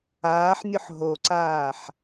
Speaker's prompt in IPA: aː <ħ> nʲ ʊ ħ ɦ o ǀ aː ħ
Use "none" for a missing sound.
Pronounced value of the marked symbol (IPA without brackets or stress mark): ħ